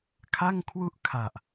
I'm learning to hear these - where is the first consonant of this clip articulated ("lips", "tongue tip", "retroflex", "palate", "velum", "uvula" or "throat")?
velum